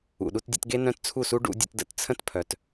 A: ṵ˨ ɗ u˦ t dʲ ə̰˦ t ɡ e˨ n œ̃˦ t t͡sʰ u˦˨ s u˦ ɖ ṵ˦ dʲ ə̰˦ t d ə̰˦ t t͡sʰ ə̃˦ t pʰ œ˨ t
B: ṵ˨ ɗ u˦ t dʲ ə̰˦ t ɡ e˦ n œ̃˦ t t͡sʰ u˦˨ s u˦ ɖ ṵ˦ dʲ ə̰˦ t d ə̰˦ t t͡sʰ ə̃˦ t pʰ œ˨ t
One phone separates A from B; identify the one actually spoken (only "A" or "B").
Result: B